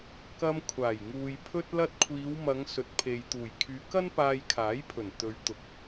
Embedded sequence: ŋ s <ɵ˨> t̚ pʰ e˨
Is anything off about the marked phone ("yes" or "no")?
no